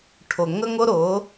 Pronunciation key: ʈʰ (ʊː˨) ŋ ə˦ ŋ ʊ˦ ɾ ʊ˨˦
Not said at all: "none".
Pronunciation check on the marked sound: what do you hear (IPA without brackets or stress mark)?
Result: ʊ˨